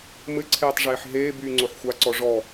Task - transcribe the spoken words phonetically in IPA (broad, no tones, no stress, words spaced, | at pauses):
mɘǀʰeːtˤʐeːħ ɦeːbyːŋ͡ǀoħ xʷaǀɔ ʐɔ